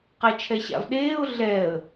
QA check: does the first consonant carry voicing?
no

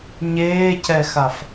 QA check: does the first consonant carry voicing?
yes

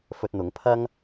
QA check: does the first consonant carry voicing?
no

